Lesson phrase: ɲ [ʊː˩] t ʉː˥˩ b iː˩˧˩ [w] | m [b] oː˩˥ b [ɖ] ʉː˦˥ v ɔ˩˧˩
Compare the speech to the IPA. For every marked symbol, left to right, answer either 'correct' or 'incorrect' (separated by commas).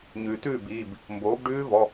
incorrect, incorrect, correct, correct